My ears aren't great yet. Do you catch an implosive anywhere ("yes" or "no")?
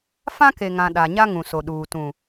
yes